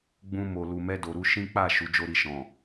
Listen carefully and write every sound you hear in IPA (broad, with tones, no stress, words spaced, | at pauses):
ɡ͡bũ˧mo˨ lu˨mɛ˧do˨ɾu˧ ʃĩ˦ k͡pa˦˨ ʃu˨˦d͡ʒo˦ɾi˦˨ ʃɔ̃˨